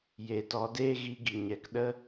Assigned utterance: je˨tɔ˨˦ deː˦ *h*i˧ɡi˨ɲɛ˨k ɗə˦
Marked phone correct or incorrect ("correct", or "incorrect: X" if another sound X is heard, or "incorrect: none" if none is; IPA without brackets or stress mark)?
incorrect: ɣ